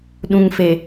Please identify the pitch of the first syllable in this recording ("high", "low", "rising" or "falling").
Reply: low